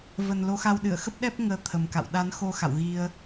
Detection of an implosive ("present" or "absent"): present